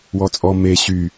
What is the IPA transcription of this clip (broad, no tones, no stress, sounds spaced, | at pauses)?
w ɔ t͡sʼ ɔ m e ɕ y